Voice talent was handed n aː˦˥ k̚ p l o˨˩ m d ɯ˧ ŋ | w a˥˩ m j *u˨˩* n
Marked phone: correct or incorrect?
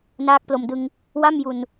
correct